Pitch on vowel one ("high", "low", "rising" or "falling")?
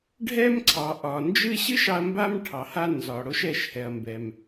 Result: high